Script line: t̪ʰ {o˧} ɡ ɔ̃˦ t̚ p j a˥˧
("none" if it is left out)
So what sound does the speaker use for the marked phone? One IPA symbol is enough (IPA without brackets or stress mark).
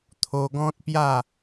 o˧